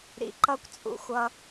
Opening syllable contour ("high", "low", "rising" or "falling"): low